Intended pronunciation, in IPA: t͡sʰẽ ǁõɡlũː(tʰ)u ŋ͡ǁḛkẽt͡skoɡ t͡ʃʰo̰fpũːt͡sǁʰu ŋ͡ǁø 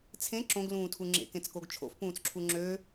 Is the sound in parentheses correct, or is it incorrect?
correct